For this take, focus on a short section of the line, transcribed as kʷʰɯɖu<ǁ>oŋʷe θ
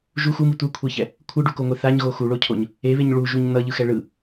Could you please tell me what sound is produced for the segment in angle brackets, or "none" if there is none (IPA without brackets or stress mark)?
k